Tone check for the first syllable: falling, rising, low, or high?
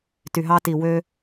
low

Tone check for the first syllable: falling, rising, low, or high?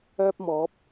high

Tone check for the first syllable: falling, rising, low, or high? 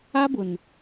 high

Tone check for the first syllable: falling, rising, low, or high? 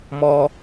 high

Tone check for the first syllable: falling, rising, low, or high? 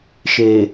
low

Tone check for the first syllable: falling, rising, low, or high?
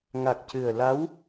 low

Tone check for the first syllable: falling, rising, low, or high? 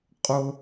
high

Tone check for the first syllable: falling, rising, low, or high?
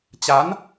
rising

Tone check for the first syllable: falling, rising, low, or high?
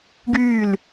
falling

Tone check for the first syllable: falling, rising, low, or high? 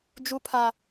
high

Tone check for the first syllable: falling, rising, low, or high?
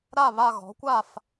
falling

